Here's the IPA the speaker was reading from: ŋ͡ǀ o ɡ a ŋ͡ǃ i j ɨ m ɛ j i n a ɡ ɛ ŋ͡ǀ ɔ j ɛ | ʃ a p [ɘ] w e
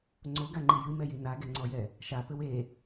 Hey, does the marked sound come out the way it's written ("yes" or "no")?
yes